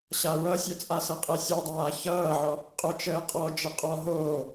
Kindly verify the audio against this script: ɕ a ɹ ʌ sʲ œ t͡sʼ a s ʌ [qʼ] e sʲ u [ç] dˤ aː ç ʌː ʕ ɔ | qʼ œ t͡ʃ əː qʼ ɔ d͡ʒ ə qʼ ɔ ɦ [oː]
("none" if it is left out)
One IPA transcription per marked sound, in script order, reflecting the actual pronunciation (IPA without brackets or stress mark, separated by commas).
qʼ, none, oː